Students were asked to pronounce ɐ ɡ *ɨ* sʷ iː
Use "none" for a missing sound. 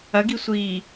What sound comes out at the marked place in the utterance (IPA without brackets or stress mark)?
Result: i